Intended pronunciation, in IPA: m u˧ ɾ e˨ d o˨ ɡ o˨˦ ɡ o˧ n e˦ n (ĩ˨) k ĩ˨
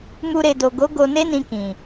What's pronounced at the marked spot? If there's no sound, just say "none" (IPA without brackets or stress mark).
ĩ˧